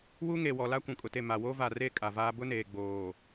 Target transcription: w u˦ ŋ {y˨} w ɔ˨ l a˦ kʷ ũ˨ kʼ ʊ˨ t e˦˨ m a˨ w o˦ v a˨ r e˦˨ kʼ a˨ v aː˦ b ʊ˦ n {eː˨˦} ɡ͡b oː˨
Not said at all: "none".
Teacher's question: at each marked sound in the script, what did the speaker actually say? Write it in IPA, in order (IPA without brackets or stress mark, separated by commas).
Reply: e˨, eː˨